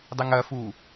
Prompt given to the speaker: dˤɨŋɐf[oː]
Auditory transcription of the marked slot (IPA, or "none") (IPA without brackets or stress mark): uː